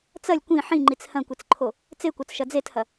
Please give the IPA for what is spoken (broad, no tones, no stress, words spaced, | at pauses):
t͡sɐlʲ kʷĩ ħĩŋ͡ǃit͡s hɐ̃kʷit͡sǃʰo | t͡sekʷɐt͡sʃɐ d͡zethɐ